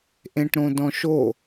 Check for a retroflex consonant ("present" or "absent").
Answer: present